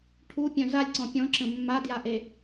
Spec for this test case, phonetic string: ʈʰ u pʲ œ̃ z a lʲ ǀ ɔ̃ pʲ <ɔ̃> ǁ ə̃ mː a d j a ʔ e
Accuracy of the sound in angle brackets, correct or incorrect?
correct